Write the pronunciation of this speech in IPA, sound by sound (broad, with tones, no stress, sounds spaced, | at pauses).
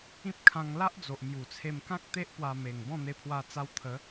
ĩ˦ p̚ kʰ ã˧ ŋ l a˦ ʔ d͡z o˨ ʔ m j u˨˩ t͡sʰ e˧ m k ã˦ k̚ t̪ e˦ ʔ p w a˧ m e˨˩ ŋ b ɔ̃˥˧ n̪ e˧ pʰ w a˧ t͡s a˧ w t̪ʰ ə˨˦